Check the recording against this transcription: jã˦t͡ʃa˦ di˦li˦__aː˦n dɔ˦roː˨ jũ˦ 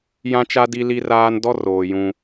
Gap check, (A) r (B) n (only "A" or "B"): A